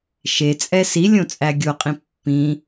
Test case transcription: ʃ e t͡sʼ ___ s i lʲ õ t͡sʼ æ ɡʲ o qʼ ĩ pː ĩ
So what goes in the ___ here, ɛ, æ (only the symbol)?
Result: ɛ